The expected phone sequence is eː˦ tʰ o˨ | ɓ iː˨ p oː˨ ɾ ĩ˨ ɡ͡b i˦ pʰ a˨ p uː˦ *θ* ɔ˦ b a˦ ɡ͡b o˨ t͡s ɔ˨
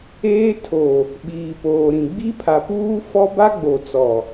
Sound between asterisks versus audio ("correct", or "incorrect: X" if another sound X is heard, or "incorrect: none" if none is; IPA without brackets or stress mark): incorrect: f